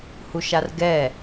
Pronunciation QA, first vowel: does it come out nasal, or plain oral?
oral